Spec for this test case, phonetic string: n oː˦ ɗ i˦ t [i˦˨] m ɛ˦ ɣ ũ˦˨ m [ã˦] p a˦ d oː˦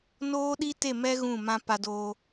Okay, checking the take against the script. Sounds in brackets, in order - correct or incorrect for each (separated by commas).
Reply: incorrect, correct